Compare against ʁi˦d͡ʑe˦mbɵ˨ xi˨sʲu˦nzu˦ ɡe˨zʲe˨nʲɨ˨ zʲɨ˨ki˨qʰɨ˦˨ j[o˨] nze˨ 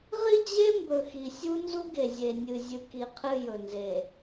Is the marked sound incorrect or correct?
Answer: incorrect